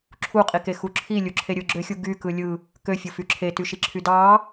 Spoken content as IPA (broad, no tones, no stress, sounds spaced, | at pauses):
ǁʰ u qʼ i k e x u ǁʰ i lʲ u ǁʰ e ɾʲ ɯ ɡ͡ǁ ø xʲ u ɡ y k ɯ lʲ ɯ | k ø fʲ o f y ǁʰ e t y ʃ i ǁʰ y d ɑ